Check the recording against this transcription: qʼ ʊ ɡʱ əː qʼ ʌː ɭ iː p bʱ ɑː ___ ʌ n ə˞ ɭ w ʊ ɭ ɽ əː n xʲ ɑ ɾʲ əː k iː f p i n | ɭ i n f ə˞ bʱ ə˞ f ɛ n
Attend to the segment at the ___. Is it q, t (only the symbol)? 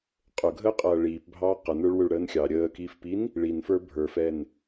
q